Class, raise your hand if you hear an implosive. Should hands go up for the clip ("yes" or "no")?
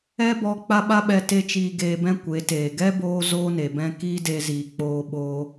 yes